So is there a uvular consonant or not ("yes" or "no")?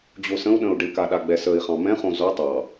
yes